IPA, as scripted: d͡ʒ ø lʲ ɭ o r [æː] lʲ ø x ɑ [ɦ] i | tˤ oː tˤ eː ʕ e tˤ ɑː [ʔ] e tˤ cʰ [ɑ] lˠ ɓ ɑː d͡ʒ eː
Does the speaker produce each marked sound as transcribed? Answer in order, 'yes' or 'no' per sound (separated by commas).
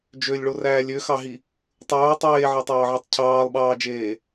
yes, yes, no, no